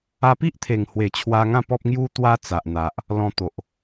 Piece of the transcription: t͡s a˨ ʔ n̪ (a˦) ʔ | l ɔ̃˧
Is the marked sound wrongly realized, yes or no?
yes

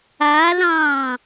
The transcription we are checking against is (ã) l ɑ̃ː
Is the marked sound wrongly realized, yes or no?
yes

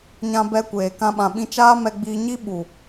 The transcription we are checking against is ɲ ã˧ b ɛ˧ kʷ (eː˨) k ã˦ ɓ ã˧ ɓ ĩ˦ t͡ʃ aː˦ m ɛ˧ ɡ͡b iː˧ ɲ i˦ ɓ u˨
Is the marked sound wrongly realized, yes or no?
no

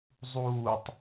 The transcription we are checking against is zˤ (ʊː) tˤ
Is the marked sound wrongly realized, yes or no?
yes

